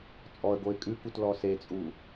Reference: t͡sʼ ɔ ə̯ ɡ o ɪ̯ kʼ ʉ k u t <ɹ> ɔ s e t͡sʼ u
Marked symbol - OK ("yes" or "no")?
no